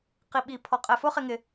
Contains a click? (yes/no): no